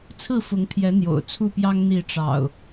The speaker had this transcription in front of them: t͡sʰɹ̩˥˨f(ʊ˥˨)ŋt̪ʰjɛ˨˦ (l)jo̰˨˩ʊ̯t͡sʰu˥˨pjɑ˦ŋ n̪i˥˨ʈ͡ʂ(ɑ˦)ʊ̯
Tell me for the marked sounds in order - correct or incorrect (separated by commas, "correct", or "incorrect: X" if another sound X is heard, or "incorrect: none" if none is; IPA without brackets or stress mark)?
incorrect: ʊ˨˦, incorrect: n̪, incorrect: ɑ̰˨˩